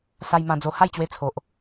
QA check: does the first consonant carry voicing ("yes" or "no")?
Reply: no